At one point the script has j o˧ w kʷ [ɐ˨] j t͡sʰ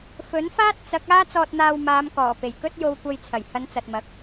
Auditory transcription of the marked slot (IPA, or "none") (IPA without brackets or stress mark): ɐ˧